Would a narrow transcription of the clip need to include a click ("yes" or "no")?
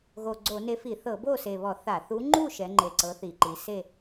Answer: yes